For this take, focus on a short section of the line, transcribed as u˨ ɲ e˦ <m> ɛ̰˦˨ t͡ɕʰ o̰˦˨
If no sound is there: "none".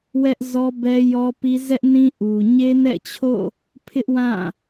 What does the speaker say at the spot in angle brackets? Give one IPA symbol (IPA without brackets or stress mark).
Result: n